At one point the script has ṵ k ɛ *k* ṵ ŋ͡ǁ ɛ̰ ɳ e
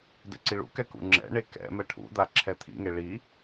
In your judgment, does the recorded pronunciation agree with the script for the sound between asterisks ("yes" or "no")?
yes